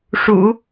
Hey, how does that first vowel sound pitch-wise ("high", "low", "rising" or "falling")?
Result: low